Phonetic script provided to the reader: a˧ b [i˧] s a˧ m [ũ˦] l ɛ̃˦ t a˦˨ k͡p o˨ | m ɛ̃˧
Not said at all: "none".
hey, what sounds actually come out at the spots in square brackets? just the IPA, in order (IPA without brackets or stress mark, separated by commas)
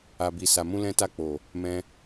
i˧, ũ˦